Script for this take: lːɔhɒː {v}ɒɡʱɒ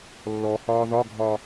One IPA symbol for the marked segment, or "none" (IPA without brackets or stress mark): ð